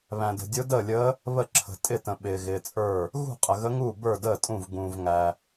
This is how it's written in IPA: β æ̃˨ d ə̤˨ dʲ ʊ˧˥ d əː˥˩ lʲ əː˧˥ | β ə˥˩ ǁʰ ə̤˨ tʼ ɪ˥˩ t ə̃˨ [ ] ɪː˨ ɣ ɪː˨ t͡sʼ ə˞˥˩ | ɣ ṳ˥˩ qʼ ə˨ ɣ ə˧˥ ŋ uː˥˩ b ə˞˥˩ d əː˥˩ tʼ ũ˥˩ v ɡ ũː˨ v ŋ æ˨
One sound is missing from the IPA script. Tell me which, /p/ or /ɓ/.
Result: ɓ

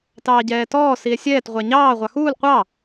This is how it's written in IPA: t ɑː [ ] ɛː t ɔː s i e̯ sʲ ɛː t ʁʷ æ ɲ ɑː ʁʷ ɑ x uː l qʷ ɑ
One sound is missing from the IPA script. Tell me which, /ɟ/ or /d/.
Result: ɟ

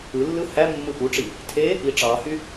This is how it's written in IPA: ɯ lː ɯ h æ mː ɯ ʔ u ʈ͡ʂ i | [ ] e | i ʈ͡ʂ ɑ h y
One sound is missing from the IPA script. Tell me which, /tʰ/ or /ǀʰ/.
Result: tʰ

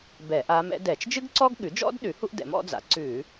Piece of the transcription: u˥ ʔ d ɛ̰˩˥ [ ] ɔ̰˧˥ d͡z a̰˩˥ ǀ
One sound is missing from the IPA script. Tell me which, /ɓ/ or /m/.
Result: m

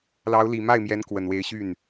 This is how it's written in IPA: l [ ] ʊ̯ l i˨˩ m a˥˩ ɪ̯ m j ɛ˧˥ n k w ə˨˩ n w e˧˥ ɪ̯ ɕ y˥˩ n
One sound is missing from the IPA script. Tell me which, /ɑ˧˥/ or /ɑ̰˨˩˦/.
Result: ɑ˧˥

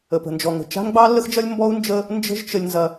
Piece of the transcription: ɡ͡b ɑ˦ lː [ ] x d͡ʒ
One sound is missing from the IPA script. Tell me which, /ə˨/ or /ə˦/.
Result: ə˦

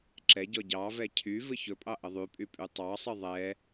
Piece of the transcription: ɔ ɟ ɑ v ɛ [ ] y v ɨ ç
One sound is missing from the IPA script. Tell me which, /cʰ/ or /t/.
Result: cʰ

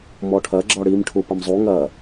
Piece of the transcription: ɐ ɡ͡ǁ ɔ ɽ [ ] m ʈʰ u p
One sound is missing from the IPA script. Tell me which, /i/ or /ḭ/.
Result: i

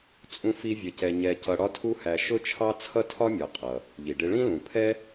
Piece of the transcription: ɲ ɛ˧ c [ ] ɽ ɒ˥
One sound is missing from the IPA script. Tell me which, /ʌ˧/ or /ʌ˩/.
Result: ʌ˧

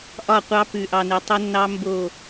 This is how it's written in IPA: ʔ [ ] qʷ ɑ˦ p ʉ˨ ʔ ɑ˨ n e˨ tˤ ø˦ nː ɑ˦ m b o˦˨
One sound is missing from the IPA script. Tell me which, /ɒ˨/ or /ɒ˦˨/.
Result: ɒ˦˨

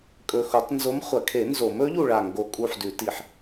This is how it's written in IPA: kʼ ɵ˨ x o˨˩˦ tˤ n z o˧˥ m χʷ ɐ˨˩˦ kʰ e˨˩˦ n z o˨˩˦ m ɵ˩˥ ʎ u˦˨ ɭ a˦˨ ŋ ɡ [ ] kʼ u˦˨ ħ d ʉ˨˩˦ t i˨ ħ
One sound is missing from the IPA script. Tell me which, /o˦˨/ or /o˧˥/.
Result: o˦˨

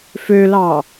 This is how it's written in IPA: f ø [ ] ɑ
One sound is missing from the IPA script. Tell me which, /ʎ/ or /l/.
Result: l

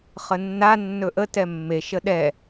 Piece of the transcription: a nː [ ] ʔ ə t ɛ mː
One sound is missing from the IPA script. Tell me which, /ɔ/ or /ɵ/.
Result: ɵ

